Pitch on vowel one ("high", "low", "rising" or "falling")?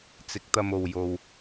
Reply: rising